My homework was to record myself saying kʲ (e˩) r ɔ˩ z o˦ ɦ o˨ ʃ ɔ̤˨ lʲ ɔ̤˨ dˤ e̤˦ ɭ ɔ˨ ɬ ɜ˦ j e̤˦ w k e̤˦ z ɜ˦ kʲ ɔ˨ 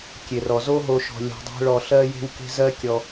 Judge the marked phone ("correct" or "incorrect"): correct